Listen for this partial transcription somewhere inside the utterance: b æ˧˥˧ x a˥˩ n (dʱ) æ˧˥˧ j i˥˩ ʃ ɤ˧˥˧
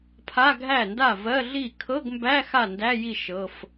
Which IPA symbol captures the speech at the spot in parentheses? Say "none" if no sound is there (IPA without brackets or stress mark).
d